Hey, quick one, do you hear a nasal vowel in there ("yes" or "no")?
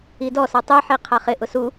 no